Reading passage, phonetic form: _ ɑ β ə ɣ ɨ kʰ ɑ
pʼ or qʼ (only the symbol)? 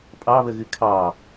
pʼ